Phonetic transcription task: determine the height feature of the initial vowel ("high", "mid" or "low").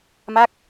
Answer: low